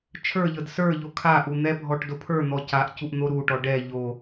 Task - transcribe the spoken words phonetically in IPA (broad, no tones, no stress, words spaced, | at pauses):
t͡ʃʰə˞ʎɤd sə˞ʎo kʰaʔu n̪ɛbʱɔʈ dopʰə˞n̪ɔ caʔcuʔ n̪oɾuʈɔ ɖɛ ʎo